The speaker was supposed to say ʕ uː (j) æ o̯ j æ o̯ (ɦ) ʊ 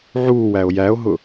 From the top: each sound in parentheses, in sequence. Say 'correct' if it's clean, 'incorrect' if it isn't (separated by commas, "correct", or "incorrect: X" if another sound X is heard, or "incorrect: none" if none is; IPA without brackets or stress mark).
incorrect: w, correct